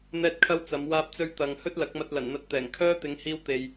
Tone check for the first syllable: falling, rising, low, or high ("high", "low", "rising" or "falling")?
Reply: high